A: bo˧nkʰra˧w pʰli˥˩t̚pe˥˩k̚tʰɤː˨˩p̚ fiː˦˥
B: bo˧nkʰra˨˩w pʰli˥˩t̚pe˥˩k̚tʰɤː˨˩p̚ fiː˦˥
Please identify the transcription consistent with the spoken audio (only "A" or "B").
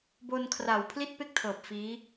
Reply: B